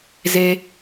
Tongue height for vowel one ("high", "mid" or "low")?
mid